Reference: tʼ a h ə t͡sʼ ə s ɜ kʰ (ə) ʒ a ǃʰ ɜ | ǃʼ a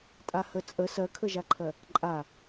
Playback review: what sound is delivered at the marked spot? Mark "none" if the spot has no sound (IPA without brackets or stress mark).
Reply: ə